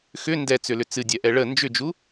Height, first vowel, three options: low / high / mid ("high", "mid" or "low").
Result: high